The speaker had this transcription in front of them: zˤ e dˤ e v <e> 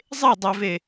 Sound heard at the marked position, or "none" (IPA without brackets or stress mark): e